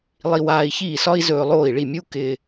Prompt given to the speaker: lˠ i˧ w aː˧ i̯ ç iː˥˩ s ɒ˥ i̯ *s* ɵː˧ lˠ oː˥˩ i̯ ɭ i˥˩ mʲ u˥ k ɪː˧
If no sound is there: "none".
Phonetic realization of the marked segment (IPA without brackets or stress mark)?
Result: z